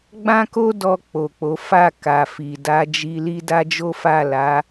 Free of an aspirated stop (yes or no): yes